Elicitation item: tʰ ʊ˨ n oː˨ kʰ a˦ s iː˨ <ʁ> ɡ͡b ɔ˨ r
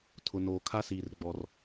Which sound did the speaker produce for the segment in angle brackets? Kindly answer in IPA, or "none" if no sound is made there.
r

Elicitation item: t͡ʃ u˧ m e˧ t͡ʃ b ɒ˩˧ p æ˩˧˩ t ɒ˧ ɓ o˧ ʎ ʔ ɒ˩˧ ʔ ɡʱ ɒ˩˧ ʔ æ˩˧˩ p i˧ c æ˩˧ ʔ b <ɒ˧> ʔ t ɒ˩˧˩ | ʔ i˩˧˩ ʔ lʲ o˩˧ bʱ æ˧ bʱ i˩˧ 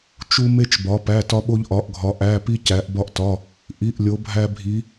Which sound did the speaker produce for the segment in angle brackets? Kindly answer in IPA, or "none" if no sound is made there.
ɒ˧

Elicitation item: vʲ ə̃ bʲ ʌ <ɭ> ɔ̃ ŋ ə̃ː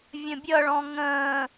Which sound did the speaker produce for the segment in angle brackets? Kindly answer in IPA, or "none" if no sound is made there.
ɭ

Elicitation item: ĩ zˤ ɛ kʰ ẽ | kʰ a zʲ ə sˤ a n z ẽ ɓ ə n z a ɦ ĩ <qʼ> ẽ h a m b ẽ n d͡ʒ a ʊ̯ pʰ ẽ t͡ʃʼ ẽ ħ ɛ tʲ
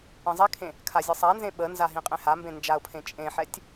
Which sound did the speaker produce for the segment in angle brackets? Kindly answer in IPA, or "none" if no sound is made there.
qʼ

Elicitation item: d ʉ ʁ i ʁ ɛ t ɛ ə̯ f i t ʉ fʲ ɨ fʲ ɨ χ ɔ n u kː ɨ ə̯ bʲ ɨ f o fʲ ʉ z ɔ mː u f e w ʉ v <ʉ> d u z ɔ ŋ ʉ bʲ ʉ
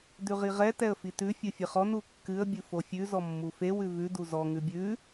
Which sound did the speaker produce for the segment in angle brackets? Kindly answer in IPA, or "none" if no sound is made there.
ʉ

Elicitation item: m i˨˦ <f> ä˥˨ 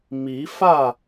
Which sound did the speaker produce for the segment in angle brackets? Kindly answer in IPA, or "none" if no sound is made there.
f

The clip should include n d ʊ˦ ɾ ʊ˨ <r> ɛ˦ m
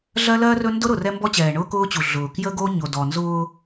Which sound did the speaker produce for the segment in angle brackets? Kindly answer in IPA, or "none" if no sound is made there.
r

